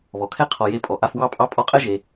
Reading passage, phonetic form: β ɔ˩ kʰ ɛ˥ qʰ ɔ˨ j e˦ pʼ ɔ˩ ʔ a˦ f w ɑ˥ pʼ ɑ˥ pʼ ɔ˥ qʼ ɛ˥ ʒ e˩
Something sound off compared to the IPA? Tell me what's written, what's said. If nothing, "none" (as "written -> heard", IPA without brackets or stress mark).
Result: none